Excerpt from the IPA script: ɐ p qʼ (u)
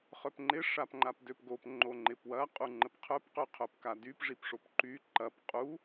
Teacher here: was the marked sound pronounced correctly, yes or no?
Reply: yes